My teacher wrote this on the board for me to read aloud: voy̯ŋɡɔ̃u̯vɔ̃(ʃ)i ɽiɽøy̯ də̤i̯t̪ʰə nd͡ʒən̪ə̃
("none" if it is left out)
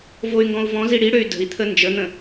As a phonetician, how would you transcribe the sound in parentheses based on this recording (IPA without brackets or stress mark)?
z